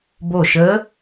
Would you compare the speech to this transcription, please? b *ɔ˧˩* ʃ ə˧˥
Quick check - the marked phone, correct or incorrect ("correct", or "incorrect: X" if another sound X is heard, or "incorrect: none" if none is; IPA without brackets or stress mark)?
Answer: incorrect: o˧˩